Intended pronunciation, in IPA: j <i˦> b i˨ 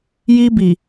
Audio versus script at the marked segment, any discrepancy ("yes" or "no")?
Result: no